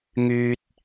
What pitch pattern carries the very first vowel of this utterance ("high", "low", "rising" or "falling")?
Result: high